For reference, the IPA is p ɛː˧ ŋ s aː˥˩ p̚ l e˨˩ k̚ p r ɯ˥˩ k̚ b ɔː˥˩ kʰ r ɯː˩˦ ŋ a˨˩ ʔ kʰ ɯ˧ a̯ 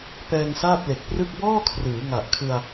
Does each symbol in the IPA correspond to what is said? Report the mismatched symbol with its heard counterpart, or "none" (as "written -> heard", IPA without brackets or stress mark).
none